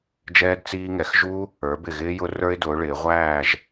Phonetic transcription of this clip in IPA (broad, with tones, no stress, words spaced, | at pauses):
d͡ʒɛː˧d t͡siː˧ŋɛ˩˧x ʒu˧ | ə˞˩˧bɪ˧˩ɣɪː˧ jʊ˧ rə˞˧ɪ̯dʊː˩˧ɭɪː˩˧ ʁʷæː˧˩ʒ